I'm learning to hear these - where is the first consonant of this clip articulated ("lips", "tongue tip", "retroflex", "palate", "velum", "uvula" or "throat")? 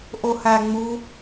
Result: throat